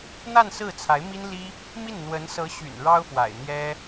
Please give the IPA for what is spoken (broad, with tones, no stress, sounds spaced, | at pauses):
n̪ a˥˧ n s ɹ̩˥˩ t͡sʰ a˧˥ ɪ̯ m i˥ n l i˥ | m i˥˩ n n̪ w ə˧˥ n s ɤ˧˥ ɕ y̰˨˩ n ɻ ɑ˥ ʊ̯ f w a̰˨˩ ɪ̯ n̪ j ɛ˥